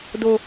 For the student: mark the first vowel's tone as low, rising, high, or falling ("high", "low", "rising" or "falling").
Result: high